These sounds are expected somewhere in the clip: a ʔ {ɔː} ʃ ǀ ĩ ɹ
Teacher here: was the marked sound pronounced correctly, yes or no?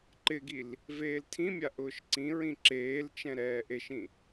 no